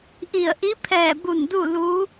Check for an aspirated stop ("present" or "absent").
present